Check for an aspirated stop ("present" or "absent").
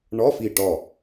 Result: absent